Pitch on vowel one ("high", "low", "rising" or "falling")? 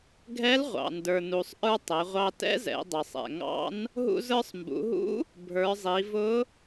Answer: rising